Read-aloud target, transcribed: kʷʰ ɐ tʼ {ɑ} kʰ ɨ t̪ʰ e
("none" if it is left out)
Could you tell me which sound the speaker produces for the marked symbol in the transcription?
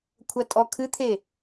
ɔ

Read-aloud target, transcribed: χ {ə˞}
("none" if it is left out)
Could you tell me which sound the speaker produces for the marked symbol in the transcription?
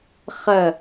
ɐ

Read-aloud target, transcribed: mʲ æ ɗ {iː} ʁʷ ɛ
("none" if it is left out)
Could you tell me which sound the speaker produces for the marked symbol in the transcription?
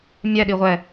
i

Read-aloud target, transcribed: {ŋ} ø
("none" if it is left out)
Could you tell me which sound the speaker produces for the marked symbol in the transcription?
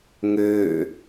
ŋ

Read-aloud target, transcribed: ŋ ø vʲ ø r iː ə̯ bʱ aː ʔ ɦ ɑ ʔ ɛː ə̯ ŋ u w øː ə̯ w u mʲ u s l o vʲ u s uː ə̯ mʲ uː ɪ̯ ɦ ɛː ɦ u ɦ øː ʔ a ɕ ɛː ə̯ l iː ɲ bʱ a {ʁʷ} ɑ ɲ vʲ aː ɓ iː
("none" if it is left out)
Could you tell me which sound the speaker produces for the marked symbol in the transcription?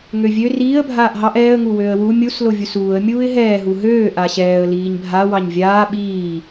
w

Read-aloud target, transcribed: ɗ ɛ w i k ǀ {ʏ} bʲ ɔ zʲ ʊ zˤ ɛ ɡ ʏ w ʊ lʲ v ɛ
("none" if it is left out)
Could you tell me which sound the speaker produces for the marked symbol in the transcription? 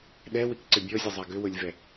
ʏ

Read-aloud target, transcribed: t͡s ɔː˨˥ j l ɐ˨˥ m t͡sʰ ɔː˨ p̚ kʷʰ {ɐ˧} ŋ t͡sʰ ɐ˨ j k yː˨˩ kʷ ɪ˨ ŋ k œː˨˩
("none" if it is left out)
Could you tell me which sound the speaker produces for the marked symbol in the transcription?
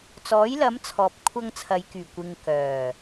ɐ˧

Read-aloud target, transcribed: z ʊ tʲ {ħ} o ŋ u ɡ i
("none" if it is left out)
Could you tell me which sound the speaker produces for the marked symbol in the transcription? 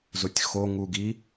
x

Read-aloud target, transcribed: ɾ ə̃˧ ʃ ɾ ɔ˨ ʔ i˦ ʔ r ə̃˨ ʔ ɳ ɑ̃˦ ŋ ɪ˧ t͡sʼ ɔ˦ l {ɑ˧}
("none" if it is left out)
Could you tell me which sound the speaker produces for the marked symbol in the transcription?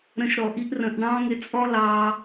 ɑ˧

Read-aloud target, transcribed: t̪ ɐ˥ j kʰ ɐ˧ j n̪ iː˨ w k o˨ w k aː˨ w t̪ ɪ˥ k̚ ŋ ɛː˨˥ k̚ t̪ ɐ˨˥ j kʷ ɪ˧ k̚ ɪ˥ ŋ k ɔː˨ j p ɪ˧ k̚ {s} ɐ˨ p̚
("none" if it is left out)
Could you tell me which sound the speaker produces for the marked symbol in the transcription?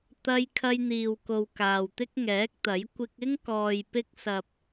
s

